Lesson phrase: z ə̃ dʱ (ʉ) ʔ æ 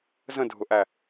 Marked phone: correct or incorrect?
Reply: incorrect